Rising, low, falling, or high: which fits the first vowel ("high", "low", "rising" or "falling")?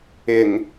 low